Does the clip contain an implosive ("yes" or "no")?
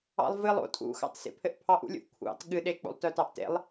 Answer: yes